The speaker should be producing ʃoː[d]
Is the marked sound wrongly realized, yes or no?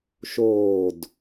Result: no